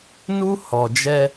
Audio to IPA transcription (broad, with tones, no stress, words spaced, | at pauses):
nu˦ hɔ˨d͡ʒɛ˦